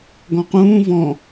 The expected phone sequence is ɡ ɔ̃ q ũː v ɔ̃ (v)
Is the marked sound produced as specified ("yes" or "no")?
no